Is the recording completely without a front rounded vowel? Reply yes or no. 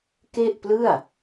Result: yes